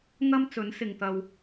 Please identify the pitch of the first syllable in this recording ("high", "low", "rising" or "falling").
high